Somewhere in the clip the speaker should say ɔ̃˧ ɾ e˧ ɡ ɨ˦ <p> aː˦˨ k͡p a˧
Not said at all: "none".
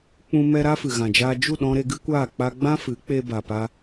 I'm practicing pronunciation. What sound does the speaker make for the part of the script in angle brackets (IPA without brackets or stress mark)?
kʷ